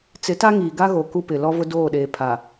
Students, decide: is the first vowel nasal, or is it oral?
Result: oral